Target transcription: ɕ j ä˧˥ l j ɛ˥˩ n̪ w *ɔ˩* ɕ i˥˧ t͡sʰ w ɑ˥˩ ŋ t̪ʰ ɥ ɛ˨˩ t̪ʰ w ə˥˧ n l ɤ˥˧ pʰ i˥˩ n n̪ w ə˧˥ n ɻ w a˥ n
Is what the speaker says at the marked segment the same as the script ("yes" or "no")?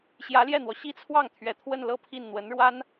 yes